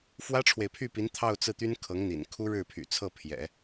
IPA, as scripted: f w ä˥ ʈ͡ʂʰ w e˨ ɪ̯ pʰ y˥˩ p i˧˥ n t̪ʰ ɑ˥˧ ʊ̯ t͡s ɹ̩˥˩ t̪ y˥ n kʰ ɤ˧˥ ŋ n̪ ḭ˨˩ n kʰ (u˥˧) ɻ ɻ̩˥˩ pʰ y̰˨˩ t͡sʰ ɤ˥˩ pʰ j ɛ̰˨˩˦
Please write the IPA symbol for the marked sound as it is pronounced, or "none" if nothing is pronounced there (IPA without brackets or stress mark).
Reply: u˥